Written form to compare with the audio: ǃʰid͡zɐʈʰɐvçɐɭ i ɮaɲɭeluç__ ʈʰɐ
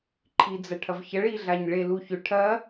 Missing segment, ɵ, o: ɵ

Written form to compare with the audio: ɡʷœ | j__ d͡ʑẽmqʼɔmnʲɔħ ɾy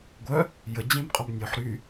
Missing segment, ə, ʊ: ə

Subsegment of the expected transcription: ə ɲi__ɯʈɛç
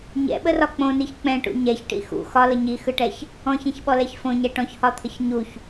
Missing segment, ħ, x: x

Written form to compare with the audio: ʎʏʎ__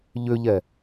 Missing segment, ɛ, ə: ɛ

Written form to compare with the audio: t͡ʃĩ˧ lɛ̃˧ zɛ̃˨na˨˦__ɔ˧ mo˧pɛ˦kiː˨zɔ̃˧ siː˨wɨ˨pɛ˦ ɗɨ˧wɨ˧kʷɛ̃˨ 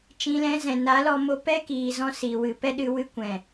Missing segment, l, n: l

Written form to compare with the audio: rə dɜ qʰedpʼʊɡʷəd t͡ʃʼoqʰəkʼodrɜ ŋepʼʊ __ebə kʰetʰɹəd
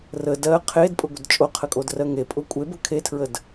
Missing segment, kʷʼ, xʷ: kʷʼ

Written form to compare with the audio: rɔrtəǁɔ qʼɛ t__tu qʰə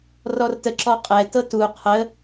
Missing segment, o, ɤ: ɤ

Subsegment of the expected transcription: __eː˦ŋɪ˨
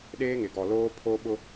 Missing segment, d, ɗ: ɗ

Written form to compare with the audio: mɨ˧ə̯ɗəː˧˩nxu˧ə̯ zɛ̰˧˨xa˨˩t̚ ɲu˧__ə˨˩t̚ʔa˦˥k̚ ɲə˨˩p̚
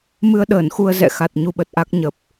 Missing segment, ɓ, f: ɓ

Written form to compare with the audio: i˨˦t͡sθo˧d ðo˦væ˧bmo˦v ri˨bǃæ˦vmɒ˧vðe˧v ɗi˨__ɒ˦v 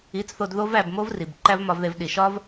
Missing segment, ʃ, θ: ʃ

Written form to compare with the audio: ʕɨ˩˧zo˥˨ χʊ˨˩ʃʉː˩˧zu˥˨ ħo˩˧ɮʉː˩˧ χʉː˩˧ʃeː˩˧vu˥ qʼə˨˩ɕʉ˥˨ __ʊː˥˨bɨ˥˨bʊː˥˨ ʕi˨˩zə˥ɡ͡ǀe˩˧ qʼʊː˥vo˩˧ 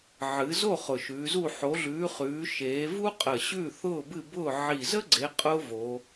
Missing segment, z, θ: θ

